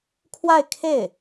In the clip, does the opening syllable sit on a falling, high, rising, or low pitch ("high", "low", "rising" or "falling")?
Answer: falling